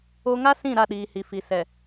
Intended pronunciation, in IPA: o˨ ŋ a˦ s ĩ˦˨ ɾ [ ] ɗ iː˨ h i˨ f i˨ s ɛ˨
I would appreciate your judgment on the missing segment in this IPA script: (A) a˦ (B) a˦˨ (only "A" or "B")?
B